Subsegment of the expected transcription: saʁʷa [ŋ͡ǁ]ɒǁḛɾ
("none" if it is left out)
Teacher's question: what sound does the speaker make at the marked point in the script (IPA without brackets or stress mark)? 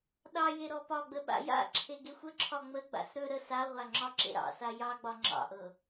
ŋ͡ǁ